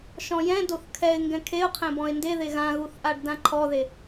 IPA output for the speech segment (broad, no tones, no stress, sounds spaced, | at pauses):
ʃ ɔ̃ j ɛ̃ d o θ kʰ ɛ ɪ̯ ŋ ɡ ɛ̃ kʰ e ʊ̯ qʰ ɛ̃ b ɔ̃ ɪ̯ n d e ð e ɣ ã ɣ u θ ʔ a ɖ d ã ǃʰ ɔ ð e